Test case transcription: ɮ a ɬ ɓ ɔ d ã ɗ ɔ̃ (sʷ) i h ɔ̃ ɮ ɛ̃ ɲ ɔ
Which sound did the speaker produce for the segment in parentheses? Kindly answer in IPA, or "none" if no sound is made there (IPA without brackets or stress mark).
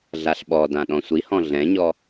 sʷ